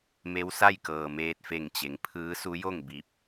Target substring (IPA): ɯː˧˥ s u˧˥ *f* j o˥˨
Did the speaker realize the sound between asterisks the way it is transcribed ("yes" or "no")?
no